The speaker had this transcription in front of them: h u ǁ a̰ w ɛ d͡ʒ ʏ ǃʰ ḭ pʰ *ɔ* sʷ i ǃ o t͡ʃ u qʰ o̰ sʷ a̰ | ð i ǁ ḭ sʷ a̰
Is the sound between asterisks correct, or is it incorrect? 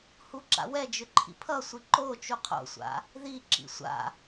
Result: incorrect